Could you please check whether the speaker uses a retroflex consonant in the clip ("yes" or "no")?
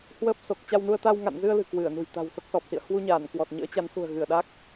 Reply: no